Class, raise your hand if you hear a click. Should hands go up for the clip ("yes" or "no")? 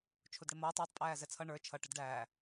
no